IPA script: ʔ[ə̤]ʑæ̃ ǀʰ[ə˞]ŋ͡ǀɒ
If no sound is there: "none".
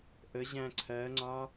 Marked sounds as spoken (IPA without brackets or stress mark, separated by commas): ə, ɜ